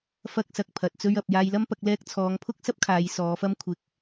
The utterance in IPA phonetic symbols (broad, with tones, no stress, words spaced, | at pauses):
fɐ˥k̚sɐ˧k̚pʰɐ˨t̚ t͡sɵ˥ɥɐ˨p̚ jaː˧jlɐ˥m pɐ˨˥k̚lɛː˥k̚ t͡sʰɔː˨˧ŋpʰʊ˥k̚sɐ˥p̚ kʰaː˨˧jsɔː˨˧fɐ˥m kʷʰɪ˨k̚